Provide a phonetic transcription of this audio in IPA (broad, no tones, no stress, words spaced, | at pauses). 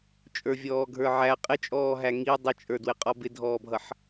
t͡ʃʼə˞vʲɔːɡʱə˞ʕæ qʼɪt͡ʃʼɔːɦæ ŋi dˤɪt͡ʃʼə˞dwɪ qʼɔbɪdʱɔːbʱʌħ